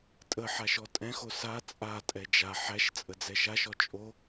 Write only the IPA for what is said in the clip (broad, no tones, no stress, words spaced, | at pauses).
tʼəħa ʃɔtʼɛ̃xo sa t͡sʼatʼɛ d͡ʒa ħæʃ t͡sʼəd͡zɛʃaʃɔ t͡ʃʼo